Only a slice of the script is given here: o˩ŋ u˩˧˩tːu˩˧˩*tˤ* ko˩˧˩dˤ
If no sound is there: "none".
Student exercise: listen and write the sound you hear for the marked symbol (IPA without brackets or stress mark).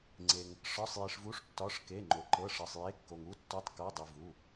tˤ